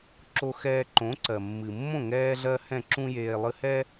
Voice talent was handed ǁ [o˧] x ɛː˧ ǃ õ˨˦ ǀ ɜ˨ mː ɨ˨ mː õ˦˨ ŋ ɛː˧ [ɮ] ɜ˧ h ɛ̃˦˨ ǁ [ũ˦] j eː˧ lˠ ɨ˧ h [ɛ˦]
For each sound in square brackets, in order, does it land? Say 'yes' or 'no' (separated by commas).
yes, yes, yes, yes